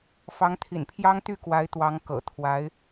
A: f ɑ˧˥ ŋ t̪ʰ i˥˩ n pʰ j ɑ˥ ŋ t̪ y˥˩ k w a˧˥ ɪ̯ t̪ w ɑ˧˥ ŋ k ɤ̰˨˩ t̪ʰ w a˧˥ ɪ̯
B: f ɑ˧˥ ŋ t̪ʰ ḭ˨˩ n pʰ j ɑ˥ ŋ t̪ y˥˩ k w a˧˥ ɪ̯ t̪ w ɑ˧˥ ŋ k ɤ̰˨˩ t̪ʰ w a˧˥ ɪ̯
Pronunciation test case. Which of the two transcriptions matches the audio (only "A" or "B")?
B